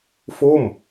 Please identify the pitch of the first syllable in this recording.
falling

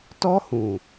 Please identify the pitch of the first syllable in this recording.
high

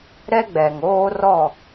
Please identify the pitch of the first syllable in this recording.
high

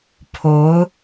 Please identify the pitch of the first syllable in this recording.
rising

